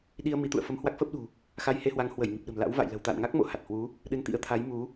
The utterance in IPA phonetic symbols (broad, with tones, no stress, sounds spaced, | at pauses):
ɗ i˧ ə̯ m i˨˦ t̪ ṵ˧˨ ə̯ f ə˧ m h w a˦˥ k̚ f əː˦˥ p̚ ɗ ṳ˨˩ | x a˧ j h e˧ h w a˨˦ ŋ h w ə˧˩ j ŋ i˨˩ p̚ ɗ ə̤˨˩ m l a̰˧˥ w v a̰˧˨ j l ə̤˨˩ w t̪ a̰˧˨ n ŋ a˦˥ k̚ m o̰˧˨ h a˨˩ t̚ h w u˨˦ | ɗ ɨ˧ n t̪ ḭ˧˥ ə̯ t̪ʰ a˨˦ j m u˨˦